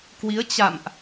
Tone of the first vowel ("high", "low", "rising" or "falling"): rising